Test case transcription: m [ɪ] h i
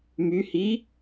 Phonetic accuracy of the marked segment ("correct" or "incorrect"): incorrect